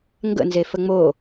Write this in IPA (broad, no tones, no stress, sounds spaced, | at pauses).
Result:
ŋ ɡ ə̰ n z e f ə ŋ͡m o